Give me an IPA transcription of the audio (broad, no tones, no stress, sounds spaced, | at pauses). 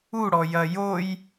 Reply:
u ɽ ɔ j ɐ j o j